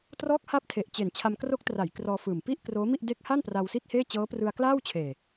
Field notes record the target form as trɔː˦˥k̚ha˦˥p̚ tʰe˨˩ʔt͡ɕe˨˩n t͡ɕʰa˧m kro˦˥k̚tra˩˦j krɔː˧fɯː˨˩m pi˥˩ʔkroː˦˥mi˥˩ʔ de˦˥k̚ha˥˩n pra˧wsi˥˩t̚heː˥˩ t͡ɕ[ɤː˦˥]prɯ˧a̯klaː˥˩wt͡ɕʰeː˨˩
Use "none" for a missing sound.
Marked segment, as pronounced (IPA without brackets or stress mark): ɤː˦˥